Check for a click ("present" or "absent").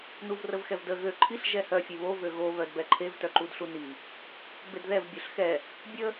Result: present